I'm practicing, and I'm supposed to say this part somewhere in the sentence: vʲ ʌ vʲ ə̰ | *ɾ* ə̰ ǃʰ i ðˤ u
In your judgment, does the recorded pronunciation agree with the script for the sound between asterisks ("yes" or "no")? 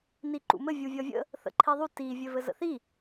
no